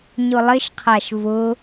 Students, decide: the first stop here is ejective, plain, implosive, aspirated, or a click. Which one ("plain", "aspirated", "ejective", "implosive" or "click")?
aspirated